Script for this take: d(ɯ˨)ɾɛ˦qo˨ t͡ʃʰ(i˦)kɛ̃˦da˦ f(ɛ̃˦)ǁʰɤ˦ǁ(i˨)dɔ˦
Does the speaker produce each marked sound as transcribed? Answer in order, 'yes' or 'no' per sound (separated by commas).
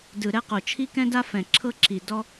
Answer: yes, yes, no, yes